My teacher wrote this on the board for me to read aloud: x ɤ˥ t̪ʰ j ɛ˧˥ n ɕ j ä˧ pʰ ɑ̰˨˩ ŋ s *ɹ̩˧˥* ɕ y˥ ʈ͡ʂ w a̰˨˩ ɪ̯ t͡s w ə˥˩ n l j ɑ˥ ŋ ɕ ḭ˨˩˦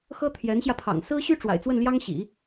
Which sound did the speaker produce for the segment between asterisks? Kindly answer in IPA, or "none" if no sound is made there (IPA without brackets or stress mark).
ɹ̩˥